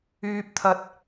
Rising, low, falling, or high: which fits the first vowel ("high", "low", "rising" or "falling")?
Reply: high